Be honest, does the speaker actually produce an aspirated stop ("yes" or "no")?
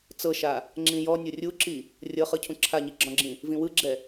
yes